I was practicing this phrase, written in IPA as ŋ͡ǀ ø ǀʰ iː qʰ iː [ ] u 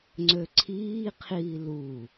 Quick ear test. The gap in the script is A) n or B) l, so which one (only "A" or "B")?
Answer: B